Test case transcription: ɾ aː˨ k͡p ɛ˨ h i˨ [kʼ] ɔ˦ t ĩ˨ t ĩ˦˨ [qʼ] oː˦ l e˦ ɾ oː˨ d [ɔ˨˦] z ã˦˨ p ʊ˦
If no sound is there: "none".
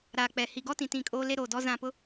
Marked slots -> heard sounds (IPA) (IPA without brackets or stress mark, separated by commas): ɡ, kʼ, ɔ˦